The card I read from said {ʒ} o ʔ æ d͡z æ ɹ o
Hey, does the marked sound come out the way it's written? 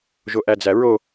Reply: yes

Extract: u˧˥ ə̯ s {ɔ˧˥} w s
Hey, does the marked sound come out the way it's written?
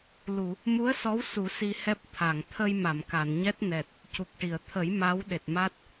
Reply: yes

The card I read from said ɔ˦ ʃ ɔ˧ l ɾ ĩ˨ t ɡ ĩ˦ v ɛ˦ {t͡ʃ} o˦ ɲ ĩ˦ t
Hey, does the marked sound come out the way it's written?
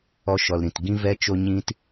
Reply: yes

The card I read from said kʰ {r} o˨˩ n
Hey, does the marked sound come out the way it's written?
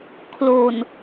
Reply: no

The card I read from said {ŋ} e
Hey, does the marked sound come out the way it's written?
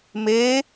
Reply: no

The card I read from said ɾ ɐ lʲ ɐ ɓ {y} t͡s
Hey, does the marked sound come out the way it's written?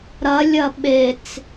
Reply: no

